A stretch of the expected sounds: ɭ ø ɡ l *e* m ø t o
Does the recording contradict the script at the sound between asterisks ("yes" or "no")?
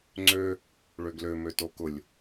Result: yes